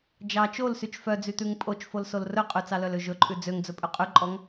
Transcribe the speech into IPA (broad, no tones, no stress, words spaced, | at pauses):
d͡ʒɑ t͡ʃolsyt͡ʃ fœd͡zyt̪ʉŋ pʼot͡ʃfolsol rɵ qʼʉt͡sɑlœlø ʒɵǃʼʉ d͡zøŋd͡zɵpʼʉ qʼʉǃʼɔŋ